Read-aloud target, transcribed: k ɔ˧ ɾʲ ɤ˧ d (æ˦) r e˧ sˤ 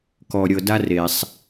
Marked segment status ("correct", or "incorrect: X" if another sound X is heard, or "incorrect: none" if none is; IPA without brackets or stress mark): incorrect: a˦